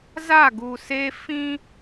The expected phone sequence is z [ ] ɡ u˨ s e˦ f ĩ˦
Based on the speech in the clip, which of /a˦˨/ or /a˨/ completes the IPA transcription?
a˦˨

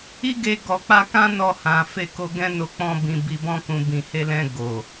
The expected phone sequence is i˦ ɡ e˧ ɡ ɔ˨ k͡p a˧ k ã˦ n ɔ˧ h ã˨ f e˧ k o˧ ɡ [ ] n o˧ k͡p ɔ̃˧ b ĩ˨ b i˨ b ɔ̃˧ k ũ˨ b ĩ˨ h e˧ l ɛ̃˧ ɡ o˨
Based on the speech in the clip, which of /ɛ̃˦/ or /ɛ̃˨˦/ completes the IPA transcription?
ɛ̃˦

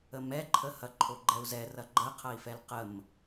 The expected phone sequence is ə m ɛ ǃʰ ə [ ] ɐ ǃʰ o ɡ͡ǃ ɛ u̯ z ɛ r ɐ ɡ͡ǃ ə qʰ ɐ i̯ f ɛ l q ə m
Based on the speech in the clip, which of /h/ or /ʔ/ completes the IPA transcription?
h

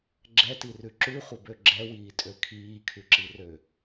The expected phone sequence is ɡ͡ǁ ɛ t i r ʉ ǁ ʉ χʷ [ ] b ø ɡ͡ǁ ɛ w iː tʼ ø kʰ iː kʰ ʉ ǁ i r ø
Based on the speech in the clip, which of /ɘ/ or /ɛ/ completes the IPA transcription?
ɘ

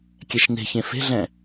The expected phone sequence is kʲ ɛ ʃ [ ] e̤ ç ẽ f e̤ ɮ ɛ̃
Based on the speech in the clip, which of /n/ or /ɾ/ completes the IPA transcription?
n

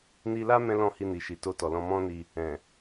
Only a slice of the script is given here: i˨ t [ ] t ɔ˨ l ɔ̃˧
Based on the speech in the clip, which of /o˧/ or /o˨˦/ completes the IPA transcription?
o˧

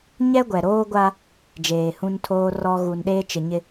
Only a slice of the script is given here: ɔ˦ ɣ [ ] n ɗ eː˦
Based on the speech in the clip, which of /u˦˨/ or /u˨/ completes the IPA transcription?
u˨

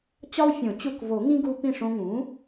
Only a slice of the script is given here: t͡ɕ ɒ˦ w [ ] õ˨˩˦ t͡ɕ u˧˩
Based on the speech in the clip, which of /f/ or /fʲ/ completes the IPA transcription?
fʲ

